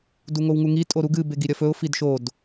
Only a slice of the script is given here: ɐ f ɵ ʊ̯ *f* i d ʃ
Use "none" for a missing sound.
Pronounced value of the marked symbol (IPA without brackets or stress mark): f